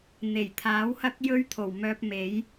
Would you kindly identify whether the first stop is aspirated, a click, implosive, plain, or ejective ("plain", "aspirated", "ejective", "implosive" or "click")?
aspirated